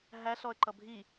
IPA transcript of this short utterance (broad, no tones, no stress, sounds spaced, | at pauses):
ɦ æ ɬ ɔ ə̯ ǃ ʌ bʱ i